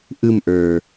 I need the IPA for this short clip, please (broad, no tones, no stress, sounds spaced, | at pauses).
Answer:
ʔ ɯ m ʔ ə˞